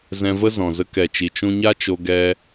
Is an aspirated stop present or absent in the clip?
absent